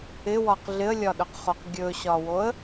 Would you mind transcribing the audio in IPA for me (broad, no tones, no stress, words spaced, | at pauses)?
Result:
ɪwɒq ɮɪə̯lʲɒɗɵqχoq ɡʲɵɕɒwoə̯